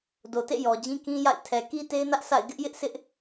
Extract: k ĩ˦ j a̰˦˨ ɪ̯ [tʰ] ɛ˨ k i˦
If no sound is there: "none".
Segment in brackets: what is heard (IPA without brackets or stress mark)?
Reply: tʰ